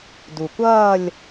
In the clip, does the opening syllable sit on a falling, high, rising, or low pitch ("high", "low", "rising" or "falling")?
low